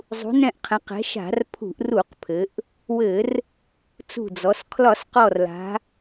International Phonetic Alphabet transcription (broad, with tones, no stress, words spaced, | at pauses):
zˤṳ˩˧nɛ̃˧˩ʔqʰɛ̃˩˧qɛ̤˩˧ ʃa̤˧˩˧rpʰṳ˧˩˧ʔru˧˩˧qpʰɘ˩˧ʔ | wɘ˧˩˧r | t͡sṳ˧˩d͡zɔ˩˧s kʰlɒ˧˩˧sqɔ˧˩rla̤˩˧